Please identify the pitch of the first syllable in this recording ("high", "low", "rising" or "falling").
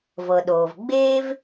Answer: low